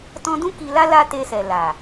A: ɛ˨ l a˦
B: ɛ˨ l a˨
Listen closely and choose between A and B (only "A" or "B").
B